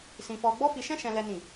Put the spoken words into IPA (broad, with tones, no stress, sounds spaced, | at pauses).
s ĩ˧ f ɔ˧ ɡ͡b ɔ˦ f i˧ ʃ ɛ̃˦ ʃ ɛ̃˦ l ɛ˦ n ĩ˦˨